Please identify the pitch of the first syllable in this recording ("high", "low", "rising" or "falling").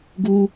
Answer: high